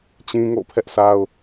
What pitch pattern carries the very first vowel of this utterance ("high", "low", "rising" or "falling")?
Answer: high